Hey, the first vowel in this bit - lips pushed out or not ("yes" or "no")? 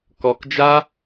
yes